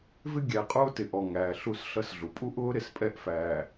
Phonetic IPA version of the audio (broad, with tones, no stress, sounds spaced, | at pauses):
v ɪ˦ ɡʲ æ˨ qʼ ʊː˦ t ɪ˨ ʔ ɔ˨ ŋ æː˨ ɬ u˦˨ s ɬ ʌ˦ s ɮ u˨ pʼ u˦ ʔ ʊː˦ ɾ ɪ˨ s pʼ ɛ˦˨ ʔ f æː˨